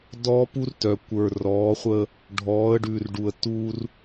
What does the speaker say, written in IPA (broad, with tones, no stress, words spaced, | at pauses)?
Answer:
dɔː˦pu˦rtœ˨ kʷə˞˨rɔː˨˦χʷə˦ | ɖʱɔː˨˦ə̯ ɖʉ˨rɖu˨ə̯tu˦r